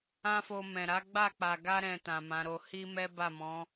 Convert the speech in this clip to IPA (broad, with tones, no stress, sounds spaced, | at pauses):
ã˦ f o˧ m ɛ̃˨ ɾ a˨˦ ɡ͡b a˦˨ k͡p a˨ ɡ a˧ ɾ ɛ̃˨ t ã˨ m ã˨˦ ɾ o˧ h i˦ m ɛ˦ b a˦˨ m ɔ̃˨˦